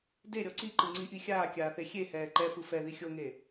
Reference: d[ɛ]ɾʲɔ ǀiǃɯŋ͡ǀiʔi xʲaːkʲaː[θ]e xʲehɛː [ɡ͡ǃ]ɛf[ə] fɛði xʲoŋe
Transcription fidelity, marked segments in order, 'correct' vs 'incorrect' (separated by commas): incorrect, correct, incorrect, incorrect